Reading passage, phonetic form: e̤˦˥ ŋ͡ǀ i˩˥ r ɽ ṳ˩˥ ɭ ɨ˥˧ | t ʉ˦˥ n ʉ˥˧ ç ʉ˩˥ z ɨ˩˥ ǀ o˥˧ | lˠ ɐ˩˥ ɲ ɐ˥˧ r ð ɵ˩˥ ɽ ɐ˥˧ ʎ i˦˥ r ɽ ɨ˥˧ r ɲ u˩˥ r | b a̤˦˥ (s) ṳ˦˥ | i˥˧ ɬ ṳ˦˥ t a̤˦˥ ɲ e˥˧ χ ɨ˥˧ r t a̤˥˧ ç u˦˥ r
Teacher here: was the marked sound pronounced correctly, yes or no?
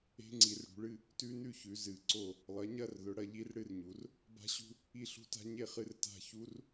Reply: no